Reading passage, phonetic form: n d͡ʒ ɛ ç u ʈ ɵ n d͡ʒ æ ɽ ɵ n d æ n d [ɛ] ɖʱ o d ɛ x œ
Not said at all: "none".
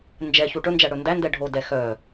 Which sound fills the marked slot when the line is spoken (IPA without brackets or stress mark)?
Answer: ɛ